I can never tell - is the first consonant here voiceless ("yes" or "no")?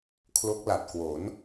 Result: yes